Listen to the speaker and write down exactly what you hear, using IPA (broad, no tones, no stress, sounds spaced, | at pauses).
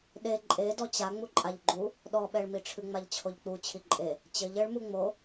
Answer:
ɗ e ǃʼ e d ɔ t͡ɕ a ŋ͡m u ǃʼ a ʎ ɡ͡ǃ u | ɗ ɔ ɓ ɛ ɭ m i ʈ͡ʂʰ ɨ ŋ͡m a ʎ t͡ɕʰ o ʎ k͡p u t͡ɕʰ i ǃʼ e | t͡ɕ ɘ ʎ ɘ ɭ m u ŋ͡m o